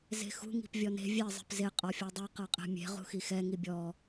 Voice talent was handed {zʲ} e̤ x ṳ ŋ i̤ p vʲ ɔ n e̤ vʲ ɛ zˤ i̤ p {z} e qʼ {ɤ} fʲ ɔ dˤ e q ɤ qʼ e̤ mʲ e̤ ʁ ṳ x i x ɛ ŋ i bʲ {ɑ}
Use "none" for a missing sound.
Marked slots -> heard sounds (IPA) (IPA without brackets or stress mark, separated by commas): z, z, ɔ, ɔ